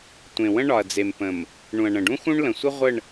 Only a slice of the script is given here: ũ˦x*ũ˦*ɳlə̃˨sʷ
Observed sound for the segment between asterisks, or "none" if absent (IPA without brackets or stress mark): ũ˦